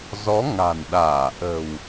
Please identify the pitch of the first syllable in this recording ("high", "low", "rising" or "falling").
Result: rising